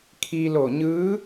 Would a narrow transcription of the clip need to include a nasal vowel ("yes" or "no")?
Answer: no